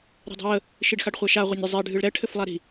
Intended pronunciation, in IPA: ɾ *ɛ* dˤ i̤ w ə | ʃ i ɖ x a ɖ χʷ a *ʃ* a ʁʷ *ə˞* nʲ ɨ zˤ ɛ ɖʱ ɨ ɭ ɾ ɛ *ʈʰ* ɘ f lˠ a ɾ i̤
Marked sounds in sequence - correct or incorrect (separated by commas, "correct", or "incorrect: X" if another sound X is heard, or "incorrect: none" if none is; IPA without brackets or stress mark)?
incorrect: ɛ̤, correct, correct, correct